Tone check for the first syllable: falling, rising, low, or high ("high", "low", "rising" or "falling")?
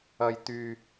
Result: low